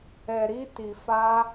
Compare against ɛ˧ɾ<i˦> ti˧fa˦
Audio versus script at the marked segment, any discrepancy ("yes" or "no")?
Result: no